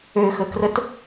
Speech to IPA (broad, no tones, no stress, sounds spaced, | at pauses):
ø x ə k r ə t